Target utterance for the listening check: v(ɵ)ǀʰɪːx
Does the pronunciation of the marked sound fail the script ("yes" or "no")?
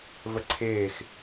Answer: yes